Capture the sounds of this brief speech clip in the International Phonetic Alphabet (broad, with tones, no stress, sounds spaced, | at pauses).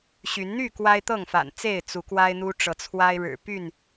ɕ y˨˦ n n̪ y˥˨ k w a˦ ɪ̯ t̪ ɤ˥˨ ŋ f a̰˨˩ n t͡s e˥˨ ɪ̯ t͡s u˨˦ k w a˦ ɪ̯ n̪ u˦ ʈ͡ʂ ɤ˨˦ t͡sʰ w a˦ ɪ̯ ɻ ɻ̩˨˩ p y˥˨ n